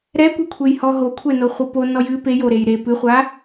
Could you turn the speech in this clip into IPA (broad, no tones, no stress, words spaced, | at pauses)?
ɾɛkʷɛkʷʰej hɔɦo kʷʰɛnoχʷɨpo nɔjɨ pejoɾej ɾe pɨχʷa